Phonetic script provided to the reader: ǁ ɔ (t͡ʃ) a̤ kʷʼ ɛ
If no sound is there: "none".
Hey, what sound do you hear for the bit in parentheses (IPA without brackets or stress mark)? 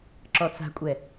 t͡s